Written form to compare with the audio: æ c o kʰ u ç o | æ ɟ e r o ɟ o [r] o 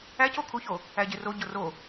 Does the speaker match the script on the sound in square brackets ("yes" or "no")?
yes